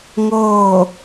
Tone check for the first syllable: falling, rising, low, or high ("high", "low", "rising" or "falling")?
falling